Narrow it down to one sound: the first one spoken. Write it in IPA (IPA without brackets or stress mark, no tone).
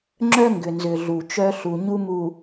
ŋ͡ǁ